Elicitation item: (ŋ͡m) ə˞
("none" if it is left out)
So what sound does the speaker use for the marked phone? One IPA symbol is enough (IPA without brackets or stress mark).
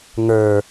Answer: ŋ